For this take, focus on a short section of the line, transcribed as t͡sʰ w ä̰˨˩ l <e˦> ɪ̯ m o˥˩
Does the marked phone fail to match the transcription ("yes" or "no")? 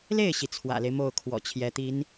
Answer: no